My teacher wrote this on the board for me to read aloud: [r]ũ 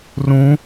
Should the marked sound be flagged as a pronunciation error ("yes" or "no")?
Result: no